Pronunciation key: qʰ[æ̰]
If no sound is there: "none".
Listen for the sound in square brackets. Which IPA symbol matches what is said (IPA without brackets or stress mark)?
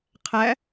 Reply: æ